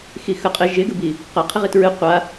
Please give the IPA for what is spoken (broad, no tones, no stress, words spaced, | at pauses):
xixə qʼɪ ʒɪɡəbi | qə qʰɪʁitɹɨ qʷa